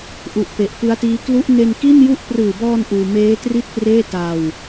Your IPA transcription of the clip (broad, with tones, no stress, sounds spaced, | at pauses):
ʔ u˨˩ ʔ p e˨˩ ʔ p ɯ˦˥ a̯ t iː˦˥ k l u˦˥ ʔ n e˧ n k i˥˩ n j u˥˩ ʔ p r ɯː˨˩ b ɔː˧ n ʔ uː˧ m eː˦˥ t r i˥˩ t̚ p r eː˥˩ t a˧ w